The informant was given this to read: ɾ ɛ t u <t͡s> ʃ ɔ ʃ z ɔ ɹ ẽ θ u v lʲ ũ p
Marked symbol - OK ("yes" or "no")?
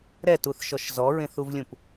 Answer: no